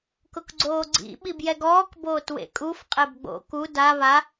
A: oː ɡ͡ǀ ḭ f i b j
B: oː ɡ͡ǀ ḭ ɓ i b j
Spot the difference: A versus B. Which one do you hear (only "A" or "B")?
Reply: B